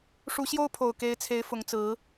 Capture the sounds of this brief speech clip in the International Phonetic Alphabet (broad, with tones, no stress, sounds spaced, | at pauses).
ʂ u˨˦ ɕ j o˦ ʊ̯ pʰ o˨˩ ʊ̯ k e˨˦ ɪ̯ t͡sʰ e˨˦ ɪ̯ f ʊ˨˦ ŋ t͡s ɹ̩˨˦